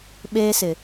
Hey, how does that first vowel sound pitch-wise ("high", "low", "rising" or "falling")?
high